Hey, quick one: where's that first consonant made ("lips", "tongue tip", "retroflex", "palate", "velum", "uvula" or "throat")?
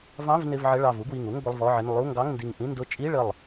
lips